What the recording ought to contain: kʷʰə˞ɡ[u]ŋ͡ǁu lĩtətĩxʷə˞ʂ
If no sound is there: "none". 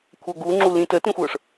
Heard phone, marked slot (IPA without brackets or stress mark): u